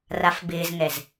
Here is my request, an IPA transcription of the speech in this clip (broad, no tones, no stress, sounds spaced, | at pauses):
r a f b ɪː z ŋ ɛ z